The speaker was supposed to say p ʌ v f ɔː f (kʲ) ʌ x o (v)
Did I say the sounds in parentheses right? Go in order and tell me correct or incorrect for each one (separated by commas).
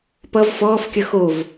correct, correct